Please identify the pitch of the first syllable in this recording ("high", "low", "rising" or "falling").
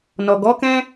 low